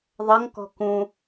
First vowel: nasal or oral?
oral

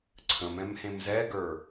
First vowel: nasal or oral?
nasal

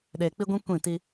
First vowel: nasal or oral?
oral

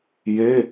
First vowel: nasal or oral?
oral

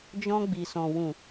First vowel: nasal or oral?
nasal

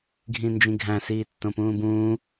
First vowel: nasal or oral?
nasal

